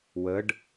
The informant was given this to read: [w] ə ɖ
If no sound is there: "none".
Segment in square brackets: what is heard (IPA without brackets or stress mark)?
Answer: w